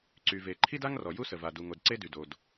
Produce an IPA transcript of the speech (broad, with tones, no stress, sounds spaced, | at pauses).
ǀ y˩ v e˩ ǃʰ i˥ d a˥ ŋ r ɔ˩ j u˥ s ə˩ v a˩ d u˩ ŋ o˩ d ǀ e˥ d y˩ d o˩ d